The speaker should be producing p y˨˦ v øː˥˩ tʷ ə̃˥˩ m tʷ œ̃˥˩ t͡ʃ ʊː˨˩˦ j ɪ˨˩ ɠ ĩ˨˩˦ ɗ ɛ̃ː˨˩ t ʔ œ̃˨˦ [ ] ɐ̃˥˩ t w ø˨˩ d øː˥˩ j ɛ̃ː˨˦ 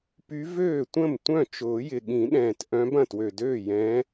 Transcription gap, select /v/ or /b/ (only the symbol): b